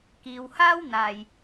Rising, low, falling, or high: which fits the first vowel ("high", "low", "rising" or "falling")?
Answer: low